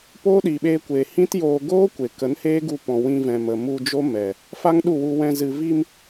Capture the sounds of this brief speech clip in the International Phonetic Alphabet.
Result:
p oː˦ ɗ i˨ ɓ eː˧ kʷ eː˨ h ĩ˦ t j oː˧ ɡ oː˦ kʷ e˨ k ə˨˦ n h eː˦ ɡ u˧ p ɔ̃˨ w ĩ˧ v ɛ̃˨ m ə˨ m u˧ d͡ʒ o˦ m ɛ˨ | f a˦ ŋ ɗ u˦˨ w u˧ w ɛ̃˧ z ɨ˨ v i˧ m

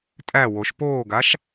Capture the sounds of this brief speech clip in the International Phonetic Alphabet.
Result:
tʼ æ w o ʃ p oː ɡ a ʃ

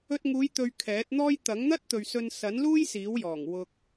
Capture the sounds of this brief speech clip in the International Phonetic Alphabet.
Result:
ɵ˧ t̚ ŋ uː˨˧ j t̪ ɵ˨ ɥ kʰ ɛː˨˥ t̚ n̪ ɔː˥ j t̪ ɐ˨˥ ŋ n̪ ɐ˥ t̚ t̪ ɵ˨ ɥ s ɵ˧ n s ɐ˨˥ n l uː˥ j s iː˨˥ w j ɔː˨˩ ŋ w ʊ˧ k̚

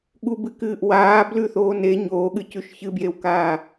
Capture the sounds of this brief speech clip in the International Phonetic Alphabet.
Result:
ɠ u b ɨ k ɨː ʔ w aː b l ʉ θ oː n e ɲ oː ɠ ɨ c ʉ ʃ ç ɨ b j e w k aː

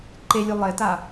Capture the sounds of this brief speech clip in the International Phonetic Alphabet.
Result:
ǃ e lʲ u lˠ e t a

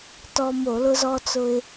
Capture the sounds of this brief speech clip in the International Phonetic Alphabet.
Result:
t ɔ˧ m o˧˩˧ l ʊ˧ z ɔ˧ t͡s ʊ˧ ɪ̯

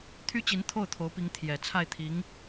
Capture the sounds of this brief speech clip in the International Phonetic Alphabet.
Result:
t̪ʰ y˥ t͡ɕ i˧˥ n t̪ʰ o˥˩ ʊ̯ t̪ʰ o˧˥ ʊ̯ p i˧˥ ŋ t̪ʰ j ɛ˨˩ t͡sʰ a˥˩ ɪ̯ t̪ʰ i˧˥ ŋ

